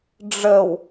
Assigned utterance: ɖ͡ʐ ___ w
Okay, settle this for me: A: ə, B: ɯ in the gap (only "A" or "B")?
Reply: A